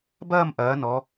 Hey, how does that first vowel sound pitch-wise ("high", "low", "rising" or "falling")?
falling